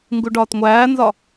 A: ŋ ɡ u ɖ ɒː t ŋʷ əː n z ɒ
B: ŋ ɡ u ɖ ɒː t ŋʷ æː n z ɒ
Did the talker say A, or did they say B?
B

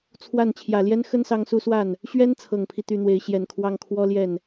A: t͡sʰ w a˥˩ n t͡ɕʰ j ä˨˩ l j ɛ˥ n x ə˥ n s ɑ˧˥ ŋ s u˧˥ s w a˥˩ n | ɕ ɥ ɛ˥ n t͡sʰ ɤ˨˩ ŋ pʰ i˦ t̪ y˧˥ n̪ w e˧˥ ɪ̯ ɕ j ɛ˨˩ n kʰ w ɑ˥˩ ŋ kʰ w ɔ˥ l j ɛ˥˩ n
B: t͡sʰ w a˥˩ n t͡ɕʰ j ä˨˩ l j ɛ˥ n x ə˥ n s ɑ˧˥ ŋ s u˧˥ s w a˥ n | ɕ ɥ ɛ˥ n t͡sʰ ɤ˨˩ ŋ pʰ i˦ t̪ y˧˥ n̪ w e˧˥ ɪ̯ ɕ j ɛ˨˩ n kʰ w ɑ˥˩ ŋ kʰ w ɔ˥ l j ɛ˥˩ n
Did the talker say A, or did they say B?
A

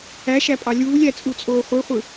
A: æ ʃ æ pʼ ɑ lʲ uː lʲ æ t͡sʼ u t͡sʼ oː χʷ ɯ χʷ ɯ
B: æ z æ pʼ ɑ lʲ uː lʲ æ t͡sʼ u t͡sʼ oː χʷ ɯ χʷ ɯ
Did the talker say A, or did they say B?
A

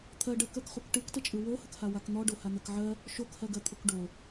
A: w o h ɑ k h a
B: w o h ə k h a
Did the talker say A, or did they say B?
B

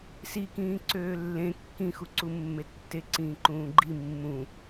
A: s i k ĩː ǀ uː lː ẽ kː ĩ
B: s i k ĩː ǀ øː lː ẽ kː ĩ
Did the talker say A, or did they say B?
B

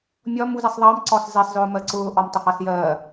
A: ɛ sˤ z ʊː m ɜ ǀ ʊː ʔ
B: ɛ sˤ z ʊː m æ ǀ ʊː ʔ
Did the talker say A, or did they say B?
A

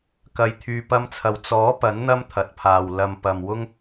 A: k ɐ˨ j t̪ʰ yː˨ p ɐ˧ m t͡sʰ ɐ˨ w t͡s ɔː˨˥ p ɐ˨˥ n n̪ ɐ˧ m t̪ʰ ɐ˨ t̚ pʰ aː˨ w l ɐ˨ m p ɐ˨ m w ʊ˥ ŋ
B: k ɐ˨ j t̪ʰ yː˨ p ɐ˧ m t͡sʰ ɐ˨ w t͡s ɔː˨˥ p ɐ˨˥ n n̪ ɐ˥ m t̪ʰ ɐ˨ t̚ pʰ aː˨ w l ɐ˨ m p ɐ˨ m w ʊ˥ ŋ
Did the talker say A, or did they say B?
B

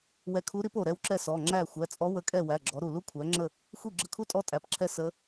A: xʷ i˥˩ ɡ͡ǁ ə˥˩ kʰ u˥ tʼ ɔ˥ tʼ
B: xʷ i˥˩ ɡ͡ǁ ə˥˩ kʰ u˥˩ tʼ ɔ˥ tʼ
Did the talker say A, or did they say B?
A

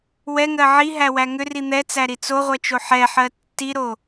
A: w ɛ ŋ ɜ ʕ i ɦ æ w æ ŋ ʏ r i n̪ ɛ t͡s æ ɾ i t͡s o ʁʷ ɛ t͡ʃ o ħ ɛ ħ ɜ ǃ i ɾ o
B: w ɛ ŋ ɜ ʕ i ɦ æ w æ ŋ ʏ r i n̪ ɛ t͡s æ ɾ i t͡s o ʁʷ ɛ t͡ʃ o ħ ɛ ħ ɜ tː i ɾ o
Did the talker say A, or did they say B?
B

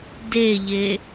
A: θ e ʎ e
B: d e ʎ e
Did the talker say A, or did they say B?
B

